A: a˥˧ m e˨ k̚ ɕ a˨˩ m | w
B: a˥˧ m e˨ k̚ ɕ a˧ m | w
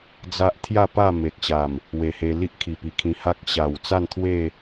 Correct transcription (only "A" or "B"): A